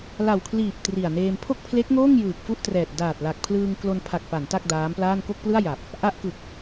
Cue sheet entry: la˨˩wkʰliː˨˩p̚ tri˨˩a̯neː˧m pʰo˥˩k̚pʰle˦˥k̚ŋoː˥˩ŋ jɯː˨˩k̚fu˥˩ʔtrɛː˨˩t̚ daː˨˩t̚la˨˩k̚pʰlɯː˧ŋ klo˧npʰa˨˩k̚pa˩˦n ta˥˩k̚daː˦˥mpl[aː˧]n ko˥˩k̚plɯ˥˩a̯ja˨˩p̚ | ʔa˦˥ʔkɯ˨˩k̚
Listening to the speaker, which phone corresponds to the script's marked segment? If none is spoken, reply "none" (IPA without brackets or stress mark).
aː˥˩